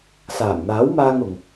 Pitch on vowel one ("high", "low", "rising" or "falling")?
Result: low